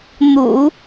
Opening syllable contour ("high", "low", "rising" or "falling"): low